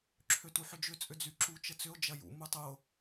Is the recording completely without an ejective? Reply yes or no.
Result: no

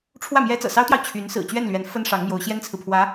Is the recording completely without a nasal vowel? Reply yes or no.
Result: yes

